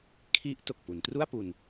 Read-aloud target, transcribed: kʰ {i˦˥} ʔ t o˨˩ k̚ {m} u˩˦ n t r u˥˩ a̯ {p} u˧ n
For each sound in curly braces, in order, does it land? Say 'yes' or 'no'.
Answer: yes, no, yes

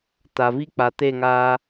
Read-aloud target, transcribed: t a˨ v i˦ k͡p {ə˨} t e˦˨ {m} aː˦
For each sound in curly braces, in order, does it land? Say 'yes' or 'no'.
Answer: no, no

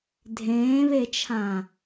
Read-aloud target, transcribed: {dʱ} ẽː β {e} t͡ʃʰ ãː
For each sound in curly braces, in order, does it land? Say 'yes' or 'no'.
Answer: yes, yes

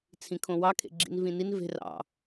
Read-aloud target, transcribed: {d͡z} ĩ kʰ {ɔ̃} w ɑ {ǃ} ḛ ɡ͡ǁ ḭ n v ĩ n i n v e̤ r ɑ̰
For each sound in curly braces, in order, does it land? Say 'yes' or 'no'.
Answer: no, no, no

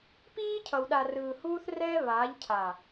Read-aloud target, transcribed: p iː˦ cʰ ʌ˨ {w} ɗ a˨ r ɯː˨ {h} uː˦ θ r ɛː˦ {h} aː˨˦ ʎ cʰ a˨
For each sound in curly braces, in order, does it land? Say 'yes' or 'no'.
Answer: yes, yes, no

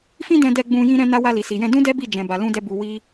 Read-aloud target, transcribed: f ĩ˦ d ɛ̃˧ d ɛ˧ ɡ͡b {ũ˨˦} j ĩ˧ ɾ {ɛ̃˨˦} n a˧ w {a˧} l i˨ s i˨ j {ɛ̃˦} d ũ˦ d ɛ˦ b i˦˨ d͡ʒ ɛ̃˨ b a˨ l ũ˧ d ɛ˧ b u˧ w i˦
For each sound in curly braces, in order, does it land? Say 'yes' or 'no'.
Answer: no, no, yes, no

